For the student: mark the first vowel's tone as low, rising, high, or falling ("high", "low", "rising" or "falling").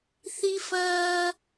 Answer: high